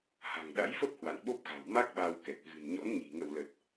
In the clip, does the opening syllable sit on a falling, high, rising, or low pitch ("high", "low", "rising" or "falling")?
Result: low